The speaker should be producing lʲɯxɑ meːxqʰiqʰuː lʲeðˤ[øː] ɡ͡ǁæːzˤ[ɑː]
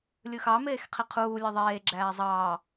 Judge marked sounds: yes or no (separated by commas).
no, yes